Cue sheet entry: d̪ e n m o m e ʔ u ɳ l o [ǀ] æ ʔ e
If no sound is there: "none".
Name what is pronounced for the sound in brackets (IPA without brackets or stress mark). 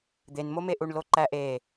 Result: ǃ